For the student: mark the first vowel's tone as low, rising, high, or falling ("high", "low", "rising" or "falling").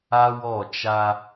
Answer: high